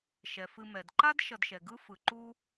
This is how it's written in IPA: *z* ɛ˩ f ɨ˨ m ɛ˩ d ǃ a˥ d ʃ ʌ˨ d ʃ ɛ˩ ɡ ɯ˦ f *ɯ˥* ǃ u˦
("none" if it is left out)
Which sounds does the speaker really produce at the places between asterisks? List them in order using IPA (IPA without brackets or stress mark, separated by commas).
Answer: ʃ, ɯ˩